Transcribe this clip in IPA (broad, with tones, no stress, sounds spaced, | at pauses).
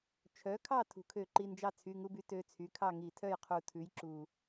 t͡ʃʰ œ˩˥ kʰ ɑ˥˨ tʰ ṳ˩ kʰ ø˧˩˧ ǃ i˩˧˩ n d͡ʒ ɑ˥˨ t͡sʰ y˩˧˩ ŋ u˦ b y˩˥ t ø˩˧˩ t͡sʰ y˩˥ kʰ ɑ˥˨ ŋ i˧˩˧ tʰ œ˥˨ j qʰ u˩ tʰ ʉ˩˥ j ǁ u˩